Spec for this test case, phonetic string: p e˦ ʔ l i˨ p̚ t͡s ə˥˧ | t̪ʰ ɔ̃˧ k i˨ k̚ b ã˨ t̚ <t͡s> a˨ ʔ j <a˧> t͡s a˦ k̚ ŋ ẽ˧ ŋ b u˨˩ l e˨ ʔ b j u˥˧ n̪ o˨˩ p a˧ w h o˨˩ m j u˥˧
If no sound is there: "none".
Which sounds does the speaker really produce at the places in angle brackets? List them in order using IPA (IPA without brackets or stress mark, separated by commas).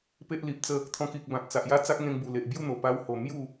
t͡s, a˥˧